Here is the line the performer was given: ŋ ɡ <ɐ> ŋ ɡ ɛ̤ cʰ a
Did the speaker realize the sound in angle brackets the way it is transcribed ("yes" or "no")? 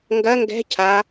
yes